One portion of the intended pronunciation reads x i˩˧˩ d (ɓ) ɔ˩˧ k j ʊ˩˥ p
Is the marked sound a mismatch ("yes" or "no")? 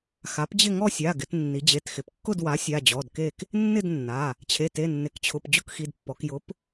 yes